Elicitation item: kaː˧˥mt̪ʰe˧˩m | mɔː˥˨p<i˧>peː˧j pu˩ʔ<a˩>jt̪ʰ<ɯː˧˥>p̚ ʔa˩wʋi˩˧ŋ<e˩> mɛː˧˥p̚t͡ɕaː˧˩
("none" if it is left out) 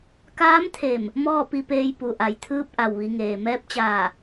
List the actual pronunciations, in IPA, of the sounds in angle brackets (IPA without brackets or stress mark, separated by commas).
i˧, a˩, ɯː˧˥, eː˩